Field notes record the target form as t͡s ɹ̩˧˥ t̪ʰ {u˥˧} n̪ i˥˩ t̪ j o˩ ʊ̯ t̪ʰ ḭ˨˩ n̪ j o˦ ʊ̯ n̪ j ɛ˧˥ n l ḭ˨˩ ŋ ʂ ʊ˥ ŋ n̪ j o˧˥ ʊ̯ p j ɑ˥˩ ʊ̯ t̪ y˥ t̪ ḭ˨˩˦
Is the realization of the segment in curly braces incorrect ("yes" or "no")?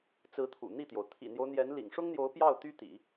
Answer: yes